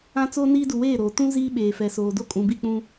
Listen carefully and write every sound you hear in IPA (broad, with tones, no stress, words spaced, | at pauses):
ã˦t͡soː˦niː˦ du˨weː˦˨ɾoː˨ tũ˦ ziː˦ɓeː˨fɛ˨soː˨ do˦kʼũ˨bi˦˨ k͡pũ˦